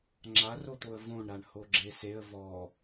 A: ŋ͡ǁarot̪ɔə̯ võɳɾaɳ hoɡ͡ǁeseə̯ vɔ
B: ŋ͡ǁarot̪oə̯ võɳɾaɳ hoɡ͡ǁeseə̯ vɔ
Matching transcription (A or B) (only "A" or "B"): B